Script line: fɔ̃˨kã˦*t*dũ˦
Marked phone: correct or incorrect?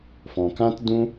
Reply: correct